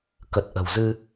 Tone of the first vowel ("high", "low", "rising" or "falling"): low